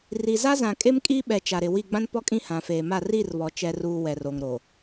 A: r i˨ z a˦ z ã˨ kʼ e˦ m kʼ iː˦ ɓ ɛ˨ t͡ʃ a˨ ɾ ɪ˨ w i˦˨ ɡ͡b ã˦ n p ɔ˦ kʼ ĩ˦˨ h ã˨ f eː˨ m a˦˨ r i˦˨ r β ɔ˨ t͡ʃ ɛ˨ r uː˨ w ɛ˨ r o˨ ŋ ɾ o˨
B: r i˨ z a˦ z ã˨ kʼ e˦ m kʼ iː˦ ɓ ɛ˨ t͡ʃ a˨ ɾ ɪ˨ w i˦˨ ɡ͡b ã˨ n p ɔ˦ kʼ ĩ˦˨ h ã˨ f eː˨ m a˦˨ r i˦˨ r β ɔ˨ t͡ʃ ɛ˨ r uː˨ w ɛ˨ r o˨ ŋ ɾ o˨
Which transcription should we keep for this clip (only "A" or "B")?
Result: A